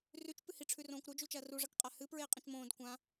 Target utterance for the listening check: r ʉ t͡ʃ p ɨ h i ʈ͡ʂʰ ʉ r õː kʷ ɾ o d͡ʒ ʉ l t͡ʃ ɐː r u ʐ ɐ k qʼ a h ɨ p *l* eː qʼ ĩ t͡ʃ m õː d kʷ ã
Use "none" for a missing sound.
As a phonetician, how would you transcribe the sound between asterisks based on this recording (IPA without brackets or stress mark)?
ɹ